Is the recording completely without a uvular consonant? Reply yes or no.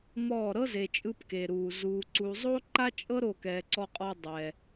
no